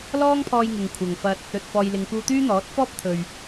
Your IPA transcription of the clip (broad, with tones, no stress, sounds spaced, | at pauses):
l ɔː˥ ŋ pʰ ɔː˧ j ŋ ɪ˨ ŋ kʷʰ ɐ˨ ŋ f ɐ˧ t̚ | ɵ˨ t̚ f ɔː˨ j l ɪ˨ ŋ k uː˧ t̪ yː˥ n̪ ɔː˨˥ t̚ f ɔː˥ p̚ t̪ʰ ɵ˨ ɥ